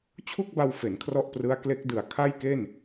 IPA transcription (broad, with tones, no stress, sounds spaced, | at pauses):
t͡ɕʰ u˥˩ k̚ b a˧ w f e˩˦ n kʰ r ɔ˥˩ ʔ p r ɯ˦˥ a̯ k l e˦˥ k̚ d ɯ˩˦ a̯ kʰ a˥˩ j k e˥˩ n